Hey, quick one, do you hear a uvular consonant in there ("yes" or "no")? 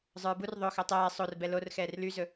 no